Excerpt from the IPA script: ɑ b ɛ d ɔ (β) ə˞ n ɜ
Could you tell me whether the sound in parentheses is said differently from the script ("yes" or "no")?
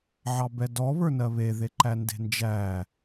no